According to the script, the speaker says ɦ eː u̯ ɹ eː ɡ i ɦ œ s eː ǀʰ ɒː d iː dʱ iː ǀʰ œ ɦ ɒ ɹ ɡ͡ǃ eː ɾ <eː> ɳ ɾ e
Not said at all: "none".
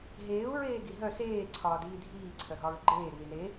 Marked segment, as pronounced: iː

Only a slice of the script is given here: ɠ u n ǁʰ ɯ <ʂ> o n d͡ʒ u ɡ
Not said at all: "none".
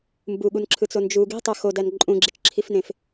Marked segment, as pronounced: t͡s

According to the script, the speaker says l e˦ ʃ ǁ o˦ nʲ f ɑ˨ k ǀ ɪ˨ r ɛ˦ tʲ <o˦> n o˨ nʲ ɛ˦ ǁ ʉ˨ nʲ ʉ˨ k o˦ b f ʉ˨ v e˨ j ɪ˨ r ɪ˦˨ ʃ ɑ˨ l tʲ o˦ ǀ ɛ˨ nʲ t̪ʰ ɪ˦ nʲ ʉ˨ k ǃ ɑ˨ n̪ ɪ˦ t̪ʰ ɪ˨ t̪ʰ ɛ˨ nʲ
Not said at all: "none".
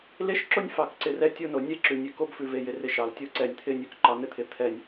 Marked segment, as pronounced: o˦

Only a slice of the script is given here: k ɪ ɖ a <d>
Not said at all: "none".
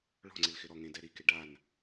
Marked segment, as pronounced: n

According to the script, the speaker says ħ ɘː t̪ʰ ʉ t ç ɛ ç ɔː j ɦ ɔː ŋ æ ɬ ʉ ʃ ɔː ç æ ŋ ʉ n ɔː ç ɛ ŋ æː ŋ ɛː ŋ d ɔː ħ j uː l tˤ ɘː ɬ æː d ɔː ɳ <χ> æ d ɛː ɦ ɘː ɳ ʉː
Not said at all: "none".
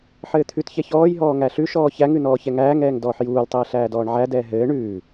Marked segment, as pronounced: ʕ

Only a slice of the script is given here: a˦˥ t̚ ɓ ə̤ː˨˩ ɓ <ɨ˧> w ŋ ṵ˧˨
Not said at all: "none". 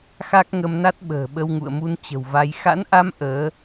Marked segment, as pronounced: ə˧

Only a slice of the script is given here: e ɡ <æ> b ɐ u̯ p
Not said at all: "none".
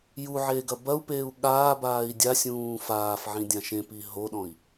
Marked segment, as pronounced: ɐ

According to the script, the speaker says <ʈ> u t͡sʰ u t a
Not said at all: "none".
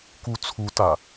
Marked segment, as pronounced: k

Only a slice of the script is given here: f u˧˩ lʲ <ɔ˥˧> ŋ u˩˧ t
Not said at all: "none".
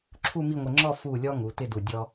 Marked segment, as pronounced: ɔ˧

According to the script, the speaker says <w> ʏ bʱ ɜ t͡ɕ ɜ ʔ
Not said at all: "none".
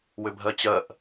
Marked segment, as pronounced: w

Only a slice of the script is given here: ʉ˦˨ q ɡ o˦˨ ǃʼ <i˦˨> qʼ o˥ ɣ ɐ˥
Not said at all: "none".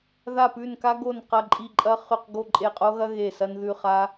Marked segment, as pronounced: e˦˨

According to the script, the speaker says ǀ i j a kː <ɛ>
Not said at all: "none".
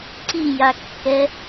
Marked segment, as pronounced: ɛ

